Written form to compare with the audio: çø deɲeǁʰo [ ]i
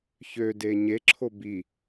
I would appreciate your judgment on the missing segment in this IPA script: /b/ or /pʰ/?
b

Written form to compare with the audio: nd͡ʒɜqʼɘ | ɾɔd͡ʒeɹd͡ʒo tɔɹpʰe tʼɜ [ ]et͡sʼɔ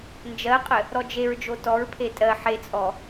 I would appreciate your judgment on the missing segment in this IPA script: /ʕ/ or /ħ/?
ħ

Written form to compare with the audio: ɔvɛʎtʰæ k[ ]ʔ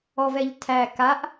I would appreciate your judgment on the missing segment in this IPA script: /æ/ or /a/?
a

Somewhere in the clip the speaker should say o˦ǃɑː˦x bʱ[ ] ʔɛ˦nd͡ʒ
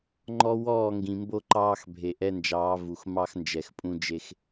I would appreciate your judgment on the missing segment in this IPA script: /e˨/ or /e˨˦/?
e˨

